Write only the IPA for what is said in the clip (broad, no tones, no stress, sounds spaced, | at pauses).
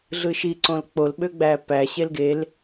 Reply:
ɮ ɯ ʃ i ǀ õ l k͡p o l ɓ ø ɡ͡b æ p æ ɕ e l ɡ e l